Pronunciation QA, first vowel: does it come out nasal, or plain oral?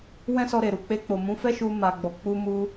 nasal